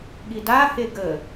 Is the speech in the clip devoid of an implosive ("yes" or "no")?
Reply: no